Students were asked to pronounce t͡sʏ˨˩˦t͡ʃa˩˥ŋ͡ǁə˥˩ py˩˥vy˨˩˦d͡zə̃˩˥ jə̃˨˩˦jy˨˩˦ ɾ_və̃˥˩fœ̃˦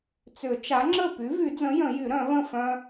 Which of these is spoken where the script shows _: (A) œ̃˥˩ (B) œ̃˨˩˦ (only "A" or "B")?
B